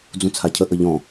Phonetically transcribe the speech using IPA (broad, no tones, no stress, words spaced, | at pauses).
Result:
d͡zũt͡sʰacʰə ʔəʎɔ̃